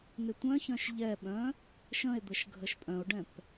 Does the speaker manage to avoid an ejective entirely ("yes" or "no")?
no